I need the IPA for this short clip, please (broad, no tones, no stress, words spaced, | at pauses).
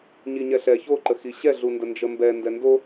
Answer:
ɲiɲɛɬɛ çoǃəxi ɕɛɮundə nd͡ʒəmbɛ ndɛndo